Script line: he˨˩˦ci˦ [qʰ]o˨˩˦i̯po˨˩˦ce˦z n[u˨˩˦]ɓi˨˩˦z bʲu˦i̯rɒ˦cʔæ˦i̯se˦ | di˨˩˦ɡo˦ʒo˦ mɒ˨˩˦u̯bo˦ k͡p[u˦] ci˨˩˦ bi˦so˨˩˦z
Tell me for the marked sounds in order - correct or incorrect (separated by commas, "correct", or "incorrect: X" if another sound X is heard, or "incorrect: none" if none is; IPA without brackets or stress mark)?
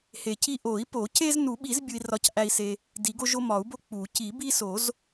incorrect: ʔ, correct, incorrect: u˨˩˦